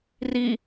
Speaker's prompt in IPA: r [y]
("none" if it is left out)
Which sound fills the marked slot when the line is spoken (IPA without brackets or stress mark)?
i